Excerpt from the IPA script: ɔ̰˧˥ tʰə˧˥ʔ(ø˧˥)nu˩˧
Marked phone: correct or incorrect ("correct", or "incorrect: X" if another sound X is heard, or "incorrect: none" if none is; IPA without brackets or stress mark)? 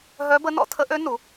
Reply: correct